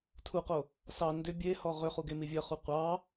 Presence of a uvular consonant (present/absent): present